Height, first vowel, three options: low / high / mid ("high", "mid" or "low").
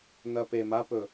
low